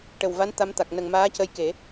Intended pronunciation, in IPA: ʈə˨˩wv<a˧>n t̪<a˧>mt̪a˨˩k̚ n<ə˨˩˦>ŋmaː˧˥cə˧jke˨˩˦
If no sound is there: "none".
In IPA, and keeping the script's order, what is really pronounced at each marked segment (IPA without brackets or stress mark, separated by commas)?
a˧˥, a˧˥, ə˨˩